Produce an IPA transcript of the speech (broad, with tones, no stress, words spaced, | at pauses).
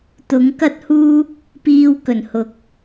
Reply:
t̪ʊ˨˥ŋkɐ˥t̚huː˥ | piː˧w kɵ˨˩nhʊ˨˥k̚